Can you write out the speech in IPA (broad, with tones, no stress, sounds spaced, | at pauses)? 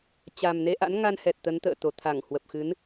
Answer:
t͡ɕ a˨˩ m n e˧ ʔ a̰˧˥ n ŋ a˧ n h ɛ˨˩ t̚ t̪ ə˨˦ n t̪ ə̰ː˧˨ t̪ o˨˩ t̪ʰ a˧˩ ŋ h w ə˨˩ p̚ x ɨ˨˦ n